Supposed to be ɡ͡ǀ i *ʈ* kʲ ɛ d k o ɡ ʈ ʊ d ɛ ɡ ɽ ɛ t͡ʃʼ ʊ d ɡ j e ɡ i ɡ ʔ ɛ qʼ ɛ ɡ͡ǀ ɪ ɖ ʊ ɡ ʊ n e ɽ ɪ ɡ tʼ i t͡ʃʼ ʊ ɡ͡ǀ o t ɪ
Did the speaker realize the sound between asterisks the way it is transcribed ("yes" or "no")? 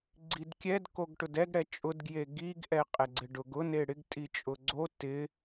no